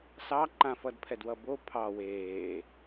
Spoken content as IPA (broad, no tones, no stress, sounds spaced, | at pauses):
s ɑ ǃ ã f ʌ d pʰ ɛ d w ʌ b o pʰ ɑ w eː